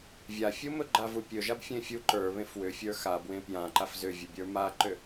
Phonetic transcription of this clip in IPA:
vʲ a fʲ u m ɵ ɡ͡ǃ a v u pʲ ɵ ʒ a b fʲ ẽ fʲ u ǃ ə˞ β ẽ f w ʏ fʲ ə˞ x a b w ẽ p j ã ǃ a f z ʏ vʲ ɵ bʲ ə˞ m a ǃ ʏ

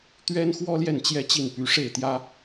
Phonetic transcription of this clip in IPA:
t̪ ɥ ɛ˥ n x w ɔ˥ l j ɛ˥˩ n t͡ɕ j ɛ˥ t͡ɕ i˥˩ n p y˧˥ ʂ e˥˩ ɪ̯ t̪ j ä˥

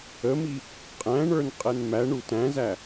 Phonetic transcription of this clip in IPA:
ə m i | qʼ æ̃ ɳ ə˞ n qʼ ɛ n m æ ɳ u t æ̃ z æ

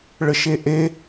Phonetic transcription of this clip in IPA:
ɭ ə ʃ e ʔ e

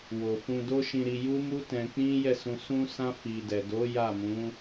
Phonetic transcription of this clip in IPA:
w o˨ f ũ˧ d o˦ ʃ ĩ˧ ɾ i˧ j u˦ m u˦ t ɛ̃˧ k͡p ĩ˦ j ɛ˦˨ s ũ˨ s ũ˧ s ã˧ f i˨ d ɛ˨ d o˨˦ j a˦˨ m ũ˨˦

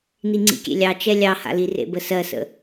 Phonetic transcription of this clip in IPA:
n i ŋ͡ǀ ḭ kʲ ḛ lʲ ɑ t͡ʃ ɛ lʲ ɑ h a̰ l i r ḛ b ə s ɜ s ə̰

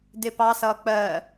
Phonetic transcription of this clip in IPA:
d ɪ p ɑ s ʌː k͡p ɜ

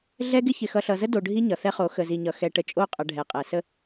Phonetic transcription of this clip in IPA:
ɮ ɛ˦ ɡ ɪ˦ ç ɪ˨ x ʌ˨ ɬ ʌ˨ z ə˦ d o˨ ɖʱ i˦ ɲ ʌ˨ θ ɛ˦ χ o˨˦ x ə˨ z i˨ ɲ ʌ˨ x ɛ˨ ʈ ə˨ t͡ʃʼ o˦˨ qʼ ʌ˨ ɖʱ ɛ˨ qʼ ɛ˨ s ə˦

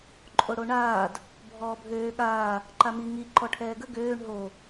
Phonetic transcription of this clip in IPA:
ǃʼ o ɽ o ɳ aː d | bʱ ɔː bʱ øː ɠ aː | ǃ a m i ŋ i ǃ ɔ ʈʰ ɛː ɡ ə ɡ øː ɳ ɦ o

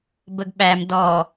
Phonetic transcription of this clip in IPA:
b ə ɡ ɓ æ m d ɔ

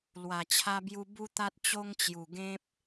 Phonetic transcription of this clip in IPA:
l w a˨˩ t͡ɕʰ a˧ b j u˧ b u˦ t̪ a˦ t̚ t͡ɕ o˦ ŋ t͡ɕ j u˨˩ ɡ ẽ˦ p̚

